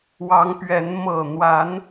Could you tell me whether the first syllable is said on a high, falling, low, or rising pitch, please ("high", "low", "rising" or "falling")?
rising